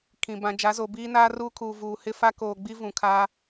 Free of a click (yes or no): yes